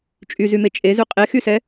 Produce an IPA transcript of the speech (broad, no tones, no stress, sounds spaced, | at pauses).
t͡ʃʼ y z y m e t͡ʃʼ e z y qʼ e x y s ɛ